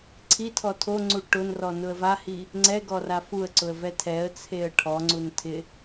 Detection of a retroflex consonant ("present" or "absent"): present